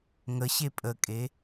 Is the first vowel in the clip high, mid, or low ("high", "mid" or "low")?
mid